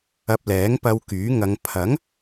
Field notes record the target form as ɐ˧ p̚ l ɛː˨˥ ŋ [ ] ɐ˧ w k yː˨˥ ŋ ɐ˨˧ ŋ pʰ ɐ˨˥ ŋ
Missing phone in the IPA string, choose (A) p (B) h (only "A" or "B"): A